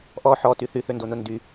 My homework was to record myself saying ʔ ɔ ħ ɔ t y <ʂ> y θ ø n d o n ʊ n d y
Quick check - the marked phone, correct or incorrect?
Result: incorrect